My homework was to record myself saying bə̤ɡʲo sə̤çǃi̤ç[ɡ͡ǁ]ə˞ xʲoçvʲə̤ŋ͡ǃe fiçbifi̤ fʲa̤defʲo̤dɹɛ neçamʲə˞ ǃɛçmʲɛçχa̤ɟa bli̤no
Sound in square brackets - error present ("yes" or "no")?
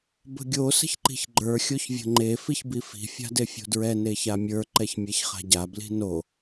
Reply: yes